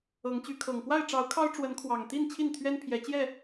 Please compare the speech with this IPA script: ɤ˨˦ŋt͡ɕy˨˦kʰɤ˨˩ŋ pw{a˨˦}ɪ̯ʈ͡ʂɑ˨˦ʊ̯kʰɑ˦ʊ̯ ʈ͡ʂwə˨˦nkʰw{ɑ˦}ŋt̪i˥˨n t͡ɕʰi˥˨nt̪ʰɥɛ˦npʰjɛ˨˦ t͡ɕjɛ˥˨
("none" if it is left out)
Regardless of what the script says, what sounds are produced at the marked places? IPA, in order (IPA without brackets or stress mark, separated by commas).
a˥˨, ɑ˨˩